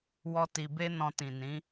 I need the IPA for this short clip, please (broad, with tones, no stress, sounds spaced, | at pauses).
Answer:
w ɔ˦ t i˧ b e˦ n ɔ̃˧ t ĩ˨ n ĩ˨˦